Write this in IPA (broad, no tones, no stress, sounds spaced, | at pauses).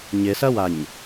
ɲ ɪ s ɐ w a ɲ